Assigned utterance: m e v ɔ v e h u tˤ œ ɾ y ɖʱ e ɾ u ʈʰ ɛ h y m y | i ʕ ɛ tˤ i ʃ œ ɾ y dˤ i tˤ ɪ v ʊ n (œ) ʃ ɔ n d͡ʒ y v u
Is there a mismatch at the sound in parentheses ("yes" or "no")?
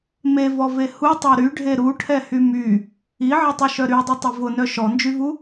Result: no